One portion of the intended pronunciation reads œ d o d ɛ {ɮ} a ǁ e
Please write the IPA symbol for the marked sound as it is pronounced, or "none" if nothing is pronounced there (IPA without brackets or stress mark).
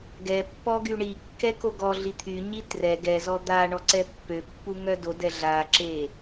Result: ɮ